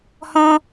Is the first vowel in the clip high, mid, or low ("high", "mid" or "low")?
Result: mid